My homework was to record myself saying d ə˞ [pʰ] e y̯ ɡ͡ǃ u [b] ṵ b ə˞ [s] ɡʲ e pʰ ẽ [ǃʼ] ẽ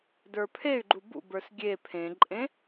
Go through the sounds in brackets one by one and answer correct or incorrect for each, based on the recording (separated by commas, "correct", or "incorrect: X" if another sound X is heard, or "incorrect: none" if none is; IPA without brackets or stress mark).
correct, correct, correct, correct